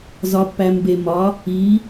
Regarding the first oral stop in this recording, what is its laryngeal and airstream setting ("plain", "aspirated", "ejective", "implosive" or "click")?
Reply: plain